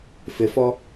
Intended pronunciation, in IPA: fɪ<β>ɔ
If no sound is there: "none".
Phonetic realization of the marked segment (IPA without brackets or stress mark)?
f